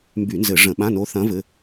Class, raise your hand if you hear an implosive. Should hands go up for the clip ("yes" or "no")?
yes